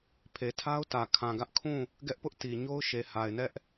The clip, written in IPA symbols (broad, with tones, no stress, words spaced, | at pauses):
pʰe˨tʰa˦ʊ̯tä˨ kʰã˨ɡä˦ʔkʰũ˦˨ | ɡɛ˦ʔpʊ˦ʔ ti˨ɲo˦ʊ̯ ʃe˨ha˨ɪ̯nɛ˦ʔ